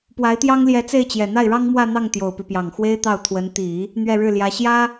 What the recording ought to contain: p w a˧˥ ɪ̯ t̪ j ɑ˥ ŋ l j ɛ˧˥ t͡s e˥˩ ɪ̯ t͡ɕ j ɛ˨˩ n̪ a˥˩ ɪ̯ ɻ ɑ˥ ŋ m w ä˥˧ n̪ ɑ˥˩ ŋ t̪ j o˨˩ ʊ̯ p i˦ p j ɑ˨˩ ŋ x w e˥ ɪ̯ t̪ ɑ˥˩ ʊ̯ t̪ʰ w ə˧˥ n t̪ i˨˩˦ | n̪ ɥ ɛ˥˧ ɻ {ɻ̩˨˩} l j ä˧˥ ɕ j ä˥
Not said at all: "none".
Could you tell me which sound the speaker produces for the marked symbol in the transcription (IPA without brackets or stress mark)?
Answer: ɻ̩˥˩